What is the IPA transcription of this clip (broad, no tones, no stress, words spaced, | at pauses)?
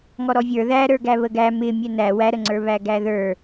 ŋɔɾɔvʲə˞ ðæɾə˞ ɡæβəɡæ mɪ mʲɛnæ wæɾəŋ͡ǀə˞ βæɡæðə˞